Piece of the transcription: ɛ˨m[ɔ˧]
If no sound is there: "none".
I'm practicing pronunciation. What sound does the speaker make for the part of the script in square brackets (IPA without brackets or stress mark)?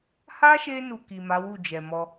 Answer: ɔ˧